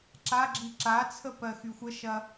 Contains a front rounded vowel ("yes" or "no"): yes